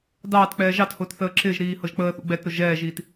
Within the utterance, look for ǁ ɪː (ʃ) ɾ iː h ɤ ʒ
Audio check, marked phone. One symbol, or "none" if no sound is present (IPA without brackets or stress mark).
ʒ